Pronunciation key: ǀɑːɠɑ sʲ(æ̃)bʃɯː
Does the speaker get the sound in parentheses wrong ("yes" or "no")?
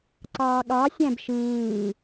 no